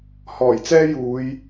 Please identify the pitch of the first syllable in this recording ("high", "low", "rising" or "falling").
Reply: low